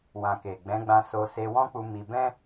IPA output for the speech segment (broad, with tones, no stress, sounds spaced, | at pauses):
w ã˨ k e˨ ɡ͡b ɛ̃˨˦ ɡ͡b ã˧ s o˧ s e˧ w ɔ̃˦ k͡p u˧ m i˧ b ɛ̃˦